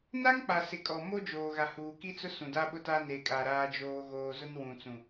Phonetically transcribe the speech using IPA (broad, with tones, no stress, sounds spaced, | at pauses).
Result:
n a˦ ŋ k͡p a˨ s ɪ˨ kʼ ɔ˨ m o˦ d͡ʒ oː˨ ɣ a˨ h uː˨ k i˦ t͡s ʊ˦ s ũ˨ d a˦ ɓ ʊ˦ t a˦ n e˨ kʼ a˨ ɾ aː˦ d͡ʒ oː˦ ɣ oː˦ z ʊ˦ n w ũ˨ t͡s ũ˨